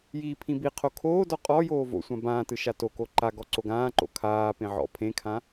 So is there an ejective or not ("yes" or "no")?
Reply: yes